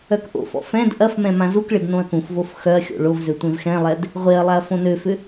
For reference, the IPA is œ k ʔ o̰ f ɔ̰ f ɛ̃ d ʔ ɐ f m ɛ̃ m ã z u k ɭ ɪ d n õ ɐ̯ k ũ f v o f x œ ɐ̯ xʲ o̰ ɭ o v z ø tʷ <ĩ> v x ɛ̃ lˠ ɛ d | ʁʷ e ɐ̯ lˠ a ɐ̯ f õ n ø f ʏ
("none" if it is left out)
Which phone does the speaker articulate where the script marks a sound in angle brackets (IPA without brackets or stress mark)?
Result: ẽ